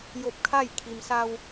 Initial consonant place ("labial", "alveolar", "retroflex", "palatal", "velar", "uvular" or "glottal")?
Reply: palatal